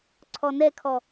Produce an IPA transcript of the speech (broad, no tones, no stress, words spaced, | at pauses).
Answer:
ǀʰɔnɛkʰɔ